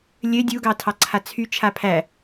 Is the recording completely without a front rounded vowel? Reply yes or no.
no